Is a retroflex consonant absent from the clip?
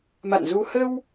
yes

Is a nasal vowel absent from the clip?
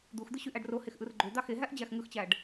yes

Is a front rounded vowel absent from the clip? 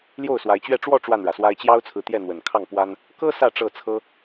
yes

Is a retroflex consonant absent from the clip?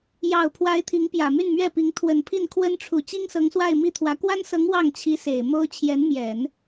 no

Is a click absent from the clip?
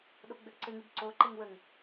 no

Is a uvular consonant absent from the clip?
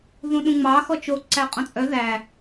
no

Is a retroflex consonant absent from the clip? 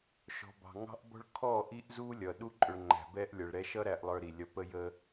no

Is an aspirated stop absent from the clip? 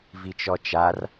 yes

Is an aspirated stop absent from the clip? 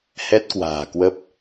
yes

